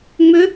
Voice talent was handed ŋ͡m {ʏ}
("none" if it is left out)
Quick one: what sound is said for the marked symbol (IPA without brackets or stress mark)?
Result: ʏ